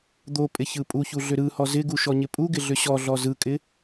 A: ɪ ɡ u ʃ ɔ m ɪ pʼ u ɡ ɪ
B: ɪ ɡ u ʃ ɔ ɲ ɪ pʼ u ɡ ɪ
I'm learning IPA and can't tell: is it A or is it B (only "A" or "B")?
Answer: B